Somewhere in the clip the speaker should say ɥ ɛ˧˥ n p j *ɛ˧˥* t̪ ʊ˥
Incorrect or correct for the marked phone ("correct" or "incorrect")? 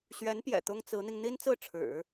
incorrect